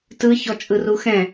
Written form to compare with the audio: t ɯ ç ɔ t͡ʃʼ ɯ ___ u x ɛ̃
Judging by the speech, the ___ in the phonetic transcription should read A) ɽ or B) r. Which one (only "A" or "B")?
B